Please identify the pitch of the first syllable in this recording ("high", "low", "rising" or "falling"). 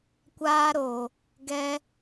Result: high